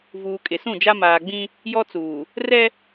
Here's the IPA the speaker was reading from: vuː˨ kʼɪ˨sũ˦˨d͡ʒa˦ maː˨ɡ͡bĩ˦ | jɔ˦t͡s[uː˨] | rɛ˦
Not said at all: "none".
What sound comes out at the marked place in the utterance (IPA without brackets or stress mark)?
uː˨